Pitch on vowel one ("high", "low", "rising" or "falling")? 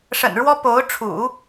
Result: low